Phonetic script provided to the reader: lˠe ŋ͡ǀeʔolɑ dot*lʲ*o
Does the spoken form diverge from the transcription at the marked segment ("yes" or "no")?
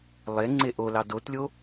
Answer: no